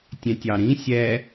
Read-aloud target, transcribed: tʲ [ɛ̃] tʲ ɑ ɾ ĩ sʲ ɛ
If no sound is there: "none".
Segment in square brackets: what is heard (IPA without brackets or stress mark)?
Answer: ɛ̃